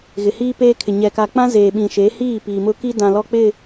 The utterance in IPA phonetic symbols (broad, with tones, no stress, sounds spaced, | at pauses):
ɣ ɪ˨ h iː˦ p eː˦ kʰ ɪ˨ ɲ ɛ˨ k a˨ k͡p ã˦ z eː˨ ɓ ĩ˨ ʃ e˨˦ h iː˦˨ p iː˨ m ʊ˦ k i˦ d ã˨ l ɔ˦ k͡p ɪ˦˨